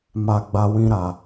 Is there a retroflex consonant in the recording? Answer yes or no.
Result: no